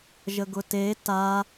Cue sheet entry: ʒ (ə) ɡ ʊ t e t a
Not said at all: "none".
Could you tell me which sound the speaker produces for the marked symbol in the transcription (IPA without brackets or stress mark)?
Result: ə